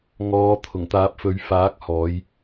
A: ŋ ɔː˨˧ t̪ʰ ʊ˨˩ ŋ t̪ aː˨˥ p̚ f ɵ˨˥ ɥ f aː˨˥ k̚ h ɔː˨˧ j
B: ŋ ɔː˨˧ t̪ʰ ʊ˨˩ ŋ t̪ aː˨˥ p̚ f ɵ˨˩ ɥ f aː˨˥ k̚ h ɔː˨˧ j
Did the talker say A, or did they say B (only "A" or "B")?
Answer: A